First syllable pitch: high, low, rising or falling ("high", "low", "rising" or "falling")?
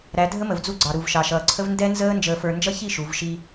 rising